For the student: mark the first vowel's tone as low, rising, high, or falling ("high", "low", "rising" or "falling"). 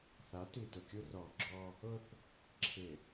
rising